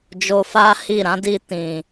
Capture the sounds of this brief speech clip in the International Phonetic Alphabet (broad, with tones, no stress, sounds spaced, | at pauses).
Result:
d͡ʒ o˧ f a˦ h i˦˨ ɾ ã˨˦ d i˧ t ĩ˨